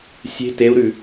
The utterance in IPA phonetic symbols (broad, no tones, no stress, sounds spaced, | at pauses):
sʲ e̤ t e u̯ ɾ ʉ